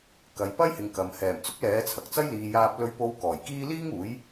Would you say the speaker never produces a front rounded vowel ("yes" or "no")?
yes